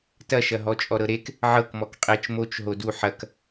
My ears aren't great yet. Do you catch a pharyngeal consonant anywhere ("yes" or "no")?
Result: yes